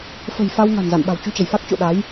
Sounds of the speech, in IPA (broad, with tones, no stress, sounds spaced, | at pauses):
f ə̤˨˩ j f a˧ w ŋ a̤˨˩ n z a̰˧˨ n ɓ a̤˨˩ w t͡ɕ u˧ t͡ɕ ə˧˩ j f a˦˥ k̚ t͡ɕ o̰˧˨ ɗ a˨˦ j